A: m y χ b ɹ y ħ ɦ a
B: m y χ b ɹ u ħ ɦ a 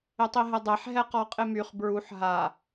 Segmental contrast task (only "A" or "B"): B